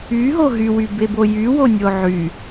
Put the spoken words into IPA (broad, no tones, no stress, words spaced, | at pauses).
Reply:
yɦo ɦywybebo jywo nʲoʕy